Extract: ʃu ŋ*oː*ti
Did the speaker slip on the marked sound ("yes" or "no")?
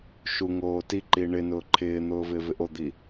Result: no